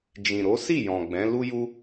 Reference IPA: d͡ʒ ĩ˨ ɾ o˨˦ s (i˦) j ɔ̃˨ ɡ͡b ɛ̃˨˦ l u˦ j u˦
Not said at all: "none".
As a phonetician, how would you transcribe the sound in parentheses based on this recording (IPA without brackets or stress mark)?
i˦˨